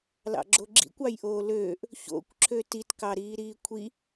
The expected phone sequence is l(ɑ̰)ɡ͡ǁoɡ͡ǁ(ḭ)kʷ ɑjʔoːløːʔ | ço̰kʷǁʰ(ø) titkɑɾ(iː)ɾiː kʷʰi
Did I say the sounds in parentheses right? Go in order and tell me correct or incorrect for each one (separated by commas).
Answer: correct, correct, correct, correct